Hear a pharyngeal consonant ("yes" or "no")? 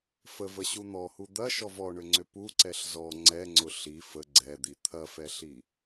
no